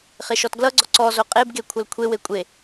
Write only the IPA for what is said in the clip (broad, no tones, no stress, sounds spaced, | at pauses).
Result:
χ e ʃ ɔ t ɡ l ʌ ɡ͡ǀ ɔ ǀ ɔ z o qʼ e b ɡ e kʷʰ ʌ l kʷʰ e w e kʷʼ e